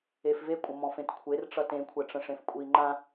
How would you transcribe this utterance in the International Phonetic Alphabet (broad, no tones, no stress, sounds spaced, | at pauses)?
e f v e kʷʼ ə̃ m ɔ̃ f ẽ t kʷʰ e r ʈ͡ʂ ʌ t ẽ kʷʰ ɛ ʈ͡ʂ ə̃ ʂ ẽ f kʷʼ i ŋ͡ǃ ã